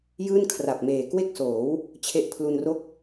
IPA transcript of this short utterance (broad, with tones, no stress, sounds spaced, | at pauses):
j ɯː˥˩ n kʰ r a˨˩ p̚ m eː˨˩ k w e˥˩ k̚ s oː˩˦ w | t͡ɕʰ e˦˥ ʔ pʰ l u˧ n r o˥˩ k̚